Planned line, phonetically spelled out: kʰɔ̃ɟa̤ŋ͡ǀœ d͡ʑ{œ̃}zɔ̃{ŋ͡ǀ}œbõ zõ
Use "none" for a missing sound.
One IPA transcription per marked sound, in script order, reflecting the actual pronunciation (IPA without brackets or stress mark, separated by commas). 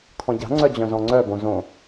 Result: œ̃, ŋ͡ǀ